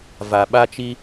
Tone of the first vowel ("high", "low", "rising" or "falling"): low